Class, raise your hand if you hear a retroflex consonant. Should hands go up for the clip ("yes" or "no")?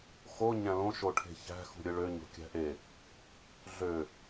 yes